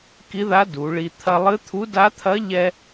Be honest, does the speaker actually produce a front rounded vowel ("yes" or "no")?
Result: no